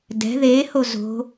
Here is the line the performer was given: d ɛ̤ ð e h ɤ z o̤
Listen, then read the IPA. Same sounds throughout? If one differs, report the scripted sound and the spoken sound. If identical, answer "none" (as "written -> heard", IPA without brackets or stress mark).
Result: ɤ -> o